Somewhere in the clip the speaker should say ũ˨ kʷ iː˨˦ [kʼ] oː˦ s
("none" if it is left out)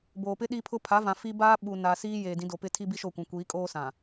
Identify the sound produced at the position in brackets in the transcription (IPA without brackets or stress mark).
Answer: kʼ